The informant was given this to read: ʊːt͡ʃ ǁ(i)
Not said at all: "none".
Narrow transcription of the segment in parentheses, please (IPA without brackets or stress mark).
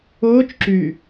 y